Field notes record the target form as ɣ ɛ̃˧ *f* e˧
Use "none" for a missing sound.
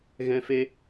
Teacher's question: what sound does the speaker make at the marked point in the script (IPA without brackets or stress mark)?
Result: f